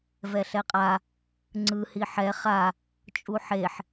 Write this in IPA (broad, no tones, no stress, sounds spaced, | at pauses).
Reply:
v ɛ ɬ ɛ qʼ a | ŋ͡ǀ ɯ h i ħ ɛ χ a | t͡ʃʼ u ħ e ħ